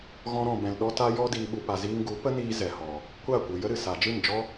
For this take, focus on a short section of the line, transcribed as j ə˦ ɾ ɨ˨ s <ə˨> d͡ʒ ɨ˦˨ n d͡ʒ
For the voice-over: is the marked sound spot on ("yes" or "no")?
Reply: no